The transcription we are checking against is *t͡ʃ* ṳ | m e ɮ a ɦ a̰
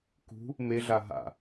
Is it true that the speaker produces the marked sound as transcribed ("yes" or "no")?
no